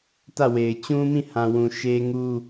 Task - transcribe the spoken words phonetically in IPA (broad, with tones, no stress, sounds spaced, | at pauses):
t ä˦˨ w e˨ ɪ̯ t͡ɕ ũ˦ m ĩ˦˨ h ã˨ w ũ˨ ʃ e˦ ŋ u˦